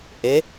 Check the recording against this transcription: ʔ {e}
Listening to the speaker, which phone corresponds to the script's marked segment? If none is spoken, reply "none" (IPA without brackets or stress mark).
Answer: e